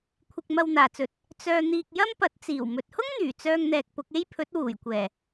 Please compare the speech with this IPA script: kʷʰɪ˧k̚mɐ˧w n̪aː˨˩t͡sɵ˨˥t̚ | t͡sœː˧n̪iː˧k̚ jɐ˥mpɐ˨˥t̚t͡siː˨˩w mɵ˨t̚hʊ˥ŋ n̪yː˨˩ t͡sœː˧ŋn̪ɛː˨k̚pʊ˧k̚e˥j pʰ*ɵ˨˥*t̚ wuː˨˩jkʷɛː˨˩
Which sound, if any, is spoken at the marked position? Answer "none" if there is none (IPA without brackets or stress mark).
ɵ˨˥